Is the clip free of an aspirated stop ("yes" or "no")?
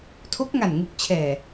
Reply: no